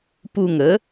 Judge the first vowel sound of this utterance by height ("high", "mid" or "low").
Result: high